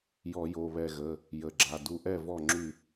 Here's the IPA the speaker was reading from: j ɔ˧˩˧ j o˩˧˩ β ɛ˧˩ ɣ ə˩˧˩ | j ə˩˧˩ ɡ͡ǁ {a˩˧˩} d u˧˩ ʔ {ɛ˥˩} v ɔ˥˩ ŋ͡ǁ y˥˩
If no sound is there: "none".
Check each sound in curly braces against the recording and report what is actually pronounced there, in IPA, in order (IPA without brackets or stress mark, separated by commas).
a˩˧˩, ɛ˥˩